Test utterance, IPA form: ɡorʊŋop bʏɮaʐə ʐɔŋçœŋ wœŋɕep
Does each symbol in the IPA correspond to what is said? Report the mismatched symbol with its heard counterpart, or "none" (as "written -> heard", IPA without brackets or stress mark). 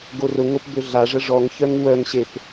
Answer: none